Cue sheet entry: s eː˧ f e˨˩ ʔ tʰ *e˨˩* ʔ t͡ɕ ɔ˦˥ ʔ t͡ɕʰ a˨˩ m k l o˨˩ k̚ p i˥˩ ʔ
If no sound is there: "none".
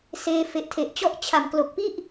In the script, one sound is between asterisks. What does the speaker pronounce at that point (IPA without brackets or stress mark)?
e˨˩